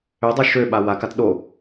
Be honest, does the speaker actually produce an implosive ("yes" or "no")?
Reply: yes